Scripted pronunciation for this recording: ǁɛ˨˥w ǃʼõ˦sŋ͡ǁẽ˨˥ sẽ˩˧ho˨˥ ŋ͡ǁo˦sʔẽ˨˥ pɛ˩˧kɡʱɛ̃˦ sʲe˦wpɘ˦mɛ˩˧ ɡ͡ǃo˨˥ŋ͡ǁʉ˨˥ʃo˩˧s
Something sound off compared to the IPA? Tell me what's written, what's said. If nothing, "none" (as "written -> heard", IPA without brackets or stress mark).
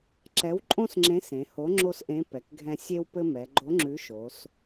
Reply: none